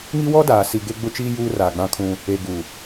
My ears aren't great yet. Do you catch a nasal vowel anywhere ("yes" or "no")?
yes